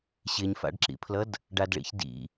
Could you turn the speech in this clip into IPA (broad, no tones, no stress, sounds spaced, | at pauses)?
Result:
ɕ ɪ ɲ f a̰ ɖ ǁ ḭ pʰ l ʌ d | ɖ a d ɭ ḭ ç d ḭ